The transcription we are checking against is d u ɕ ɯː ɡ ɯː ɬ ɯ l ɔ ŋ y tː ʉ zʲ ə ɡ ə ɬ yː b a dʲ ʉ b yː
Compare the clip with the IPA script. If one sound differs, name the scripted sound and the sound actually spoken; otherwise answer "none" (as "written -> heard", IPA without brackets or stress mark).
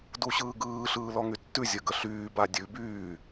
ɯ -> ɯː